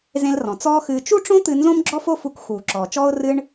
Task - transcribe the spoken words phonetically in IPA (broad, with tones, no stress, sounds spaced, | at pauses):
z ẽ˧ l r ɔ̃˩ t͡s ɔː˧ x ɨː˧ t͡ʃ u˥ ʈ͡ʂ õ˥ t̪ ɨ˧ n z õ˥ m ɡ͡ǁ ɔ˥ f o˥ f u˧ k x uː˩ ǁ ɔː˩ t͡ʃ ɔː˥ ʊ̯ r ɨ˥ ɳ